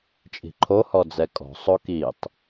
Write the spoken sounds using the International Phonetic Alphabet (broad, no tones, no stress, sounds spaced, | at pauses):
t͡ʃʼ i̤ ǃʰ o h ɔ d͡z ɛ kʼ ɔ̤ sˤ o k i tˤ